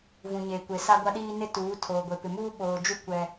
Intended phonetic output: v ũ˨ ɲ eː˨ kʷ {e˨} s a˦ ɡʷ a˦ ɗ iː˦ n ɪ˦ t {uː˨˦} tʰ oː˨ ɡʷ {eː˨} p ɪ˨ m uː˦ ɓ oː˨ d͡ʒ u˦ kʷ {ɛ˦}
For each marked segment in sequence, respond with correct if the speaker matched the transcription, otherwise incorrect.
correct, correct, incorrect: e˨, correct

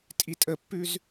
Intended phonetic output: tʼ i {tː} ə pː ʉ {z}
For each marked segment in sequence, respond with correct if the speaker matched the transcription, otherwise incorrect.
incorrect: tʼ, correct

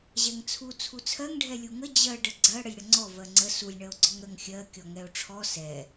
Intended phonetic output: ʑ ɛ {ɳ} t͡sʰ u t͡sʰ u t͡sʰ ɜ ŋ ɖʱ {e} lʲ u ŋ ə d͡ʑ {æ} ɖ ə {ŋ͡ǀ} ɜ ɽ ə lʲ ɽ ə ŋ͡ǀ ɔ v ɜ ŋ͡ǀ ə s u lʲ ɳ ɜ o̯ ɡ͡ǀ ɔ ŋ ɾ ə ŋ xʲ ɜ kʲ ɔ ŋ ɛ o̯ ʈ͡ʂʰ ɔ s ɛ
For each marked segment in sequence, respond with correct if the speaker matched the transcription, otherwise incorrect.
incorrect: ŋ, incorrect: ɛ, incorrect: ɜ, incorrect: ɡ͡ǀ

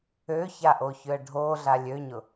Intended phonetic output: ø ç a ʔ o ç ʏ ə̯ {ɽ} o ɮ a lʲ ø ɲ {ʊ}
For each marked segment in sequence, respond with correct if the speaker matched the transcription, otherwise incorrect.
incorrect: ɖʱ, correct

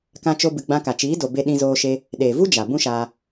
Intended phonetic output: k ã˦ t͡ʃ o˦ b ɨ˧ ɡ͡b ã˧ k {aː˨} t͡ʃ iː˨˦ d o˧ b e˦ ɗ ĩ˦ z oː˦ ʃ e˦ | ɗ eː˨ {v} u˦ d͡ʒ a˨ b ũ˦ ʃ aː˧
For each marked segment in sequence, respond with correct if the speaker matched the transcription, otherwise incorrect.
incorrect: a˨, correct

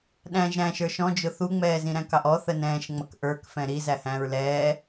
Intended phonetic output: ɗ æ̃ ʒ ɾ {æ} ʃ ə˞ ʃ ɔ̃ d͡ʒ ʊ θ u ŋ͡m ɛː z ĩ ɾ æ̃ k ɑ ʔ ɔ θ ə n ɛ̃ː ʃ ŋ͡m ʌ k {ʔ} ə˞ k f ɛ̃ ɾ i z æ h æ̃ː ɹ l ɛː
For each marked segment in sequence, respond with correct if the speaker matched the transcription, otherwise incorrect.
incorrect: æ̃, correct

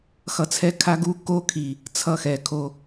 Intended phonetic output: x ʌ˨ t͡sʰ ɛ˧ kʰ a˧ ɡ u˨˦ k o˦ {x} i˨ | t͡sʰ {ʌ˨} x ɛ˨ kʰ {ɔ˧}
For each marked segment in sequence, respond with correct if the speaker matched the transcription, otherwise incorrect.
incorrect: kʰ, incorrect: ʌ˦, incorrect: o˧

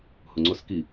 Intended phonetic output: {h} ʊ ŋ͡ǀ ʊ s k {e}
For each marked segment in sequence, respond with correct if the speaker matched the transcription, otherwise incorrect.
correct, incorrect: i

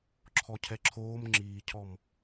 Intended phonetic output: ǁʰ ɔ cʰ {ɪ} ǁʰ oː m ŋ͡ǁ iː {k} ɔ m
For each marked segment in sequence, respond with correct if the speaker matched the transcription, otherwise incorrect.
incorrect: ɛ, incorrect: cʰ

